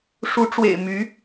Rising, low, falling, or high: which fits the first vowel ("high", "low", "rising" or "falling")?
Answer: rising